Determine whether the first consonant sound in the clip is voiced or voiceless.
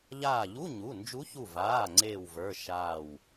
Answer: voiced